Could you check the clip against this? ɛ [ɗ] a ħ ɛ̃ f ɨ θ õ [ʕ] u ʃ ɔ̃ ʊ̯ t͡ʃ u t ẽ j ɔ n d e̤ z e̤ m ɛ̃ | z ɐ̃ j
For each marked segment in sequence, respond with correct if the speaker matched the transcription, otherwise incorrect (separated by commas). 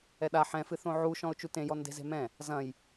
correct, correct